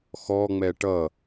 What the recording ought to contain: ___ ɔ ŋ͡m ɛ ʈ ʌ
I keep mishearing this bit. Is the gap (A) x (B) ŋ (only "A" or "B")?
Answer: A